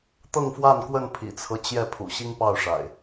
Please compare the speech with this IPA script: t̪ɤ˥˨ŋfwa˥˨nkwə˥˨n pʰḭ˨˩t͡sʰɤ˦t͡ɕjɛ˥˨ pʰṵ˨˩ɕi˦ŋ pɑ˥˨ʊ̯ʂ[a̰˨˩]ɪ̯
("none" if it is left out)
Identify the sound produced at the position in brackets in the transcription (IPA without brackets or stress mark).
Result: a̰˨˩